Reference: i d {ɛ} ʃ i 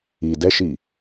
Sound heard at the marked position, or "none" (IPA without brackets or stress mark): ɛ